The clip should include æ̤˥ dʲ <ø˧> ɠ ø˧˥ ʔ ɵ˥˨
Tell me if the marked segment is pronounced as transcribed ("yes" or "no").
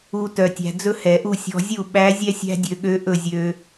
yes